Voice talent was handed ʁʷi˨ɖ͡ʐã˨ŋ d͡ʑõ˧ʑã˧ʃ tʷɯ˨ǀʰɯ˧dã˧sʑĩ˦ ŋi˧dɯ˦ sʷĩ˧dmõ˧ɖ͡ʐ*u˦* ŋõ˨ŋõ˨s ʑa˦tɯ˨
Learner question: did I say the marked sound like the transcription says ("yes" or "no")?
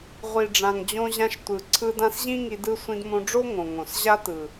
no